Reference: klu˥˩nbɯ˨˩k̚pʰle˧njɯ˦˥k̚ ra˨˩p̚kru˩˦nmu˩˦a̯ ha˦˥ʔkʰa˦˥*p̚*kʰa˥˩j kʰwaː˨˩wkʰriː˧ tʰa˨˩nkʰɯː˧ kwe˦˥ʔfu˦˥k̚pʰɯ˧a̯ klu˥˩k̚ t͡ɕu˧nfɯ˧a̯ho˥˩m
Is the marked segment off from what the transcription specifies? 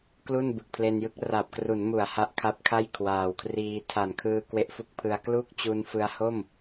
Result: no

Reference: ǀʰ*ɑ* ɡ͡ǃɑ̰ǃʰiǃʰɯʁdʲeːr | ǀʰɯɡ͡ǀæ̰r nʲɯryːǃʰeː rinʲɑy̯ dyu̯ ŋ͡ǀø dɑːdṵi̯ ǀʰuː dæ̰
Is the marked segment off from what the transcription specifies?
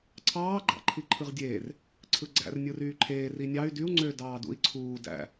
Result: yes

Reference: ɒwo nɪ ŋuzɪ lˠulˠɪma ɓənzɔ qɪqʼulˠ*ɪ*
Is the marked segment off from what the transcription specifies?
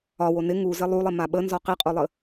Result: yes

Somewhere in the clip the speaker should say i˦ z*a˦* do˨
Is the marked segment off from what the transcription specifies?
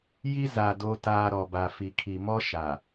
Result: yes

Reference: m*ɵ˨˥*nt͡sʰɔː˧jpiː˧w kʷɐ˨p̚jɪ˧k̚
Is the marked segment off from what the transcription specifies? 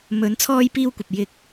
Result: yes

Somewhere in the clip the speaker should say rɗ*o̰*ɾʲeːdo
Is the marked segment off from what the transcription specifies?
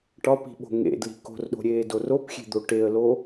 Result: yes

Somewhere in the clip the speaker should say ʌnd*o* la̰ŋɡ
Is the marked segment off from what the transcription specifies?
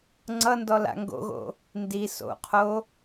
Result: yes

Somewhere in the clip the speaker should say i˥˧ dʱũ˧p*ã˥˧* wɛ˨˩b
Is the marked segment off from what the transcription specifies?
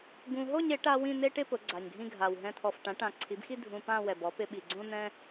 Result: no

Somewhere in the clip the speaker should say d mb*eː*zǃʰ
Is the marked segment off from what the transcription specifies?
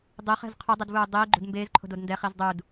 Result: no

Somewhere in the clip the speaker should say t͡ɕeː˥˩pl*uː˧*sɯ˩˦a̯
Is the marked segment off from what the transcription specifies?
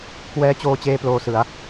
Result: yes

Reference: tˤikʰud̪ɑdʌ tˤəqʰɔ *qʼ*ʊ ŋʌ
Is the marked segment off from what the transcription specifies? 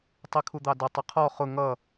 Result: yes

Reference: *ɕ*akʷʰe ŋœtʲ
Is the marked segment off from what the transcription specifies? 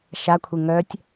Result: yes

